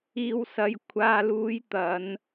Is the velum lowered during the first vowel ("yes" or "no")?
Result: no